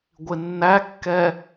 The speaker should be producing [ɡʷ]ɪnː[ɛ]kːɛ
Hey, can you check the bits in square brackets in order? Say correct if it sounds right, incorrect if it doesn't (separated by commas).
correct, incorrect